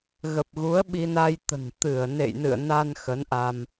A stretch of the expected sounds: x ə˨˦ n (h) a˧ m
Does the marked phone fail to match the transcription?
yes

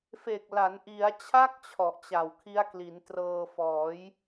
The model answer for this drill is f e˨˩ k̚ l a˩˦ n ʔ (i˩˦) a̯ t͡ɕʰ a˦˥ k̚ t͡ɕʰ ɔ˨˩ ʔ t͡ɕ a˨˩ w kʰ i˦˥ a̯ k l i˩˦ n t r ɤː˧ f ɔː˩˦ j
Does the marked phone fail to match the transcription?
no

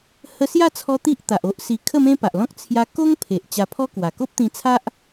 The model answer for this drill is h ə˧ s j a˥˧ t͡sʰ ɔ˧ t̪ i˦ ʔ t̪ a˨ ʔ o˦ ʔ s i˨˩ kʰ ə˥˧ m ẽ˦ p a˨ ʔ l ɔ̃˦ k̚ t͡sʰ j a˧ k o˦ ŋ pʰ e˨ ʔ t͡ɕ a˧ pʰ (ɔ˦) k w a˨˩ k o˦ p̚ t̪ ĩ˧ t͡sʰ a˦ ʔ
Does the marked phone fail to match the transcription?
no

